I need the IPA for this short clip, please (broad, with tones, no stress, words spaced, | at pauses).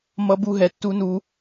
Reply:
mʌ˦bu˦ɦɛ˨˦tːu˦ nu˦